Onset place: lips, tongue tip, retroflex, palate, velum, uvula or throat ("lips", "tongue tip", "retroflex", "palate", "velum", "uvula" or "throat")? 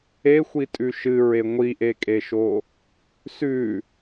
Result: velum